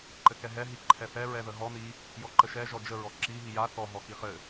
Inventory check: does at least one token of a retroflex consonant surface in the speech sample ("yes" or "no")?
no